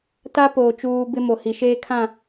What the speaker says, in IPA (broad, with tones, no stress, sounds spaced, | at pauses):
t a˦ p oː˨ t͡ʃ uː˦ b ɪ˦ m o˨ h i˨ ʃ eː˦ kʰ ã˦˨